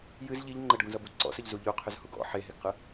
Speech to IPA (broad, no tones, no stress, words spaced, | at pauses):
jɨz ʎiʎ ŋ͡ǃəɖɡũzʌbu ǀɔ̰səʎzu ʎuqʰʏzhuɡ ɔ̰ ħeɦeɡqɯ